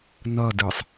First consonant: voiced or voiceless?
voiced